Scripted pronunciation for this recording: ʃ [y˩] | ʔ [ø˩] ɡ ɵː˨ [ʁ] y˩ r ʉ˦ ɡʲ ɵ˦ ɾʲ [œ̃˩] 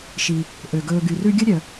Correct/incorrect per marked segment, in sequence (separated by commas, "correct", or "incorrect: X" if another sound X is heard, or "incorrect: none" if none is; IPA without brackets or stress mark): incorrect: i˩, correct, incorrect: ɡ, incorrect: œ˩